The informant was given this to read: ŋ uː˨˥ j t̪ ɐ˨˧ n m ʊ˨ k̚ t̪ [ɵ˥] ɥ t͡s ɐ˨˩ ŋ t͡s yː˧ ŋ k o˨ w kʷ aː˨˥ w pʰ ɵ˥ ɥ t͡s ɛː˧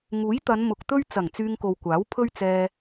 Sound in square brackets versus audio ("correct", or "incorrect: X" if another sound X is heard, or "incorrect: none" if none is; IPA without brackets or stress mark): correct